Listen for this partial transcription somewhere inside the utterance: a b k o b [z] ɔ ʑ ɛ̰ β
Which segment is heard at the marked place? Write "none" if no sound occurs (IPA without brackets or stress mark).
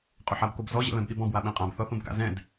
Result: z